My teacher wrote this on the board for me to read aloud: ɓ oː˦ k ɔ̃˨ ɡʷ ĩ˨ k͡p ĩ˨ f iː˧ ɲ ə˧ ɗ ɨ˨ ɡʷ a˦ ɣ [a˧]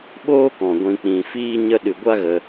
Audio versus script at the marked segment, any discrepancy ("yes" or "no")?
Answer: yes